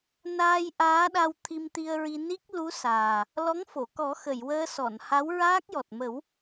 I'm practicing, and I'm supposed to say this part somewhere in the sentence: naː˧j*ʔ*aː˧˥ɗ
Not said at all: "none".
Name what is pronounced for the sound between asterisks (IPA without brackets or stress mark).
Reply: ʔ